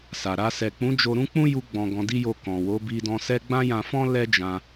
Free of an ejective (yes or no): yes